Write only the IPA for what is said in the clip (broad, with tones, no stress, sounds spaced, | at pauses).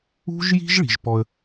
ṳ˦ ʒ j i̤˦ ʒ ɭ i̤˨ ʒ p ɔ˧ ə̯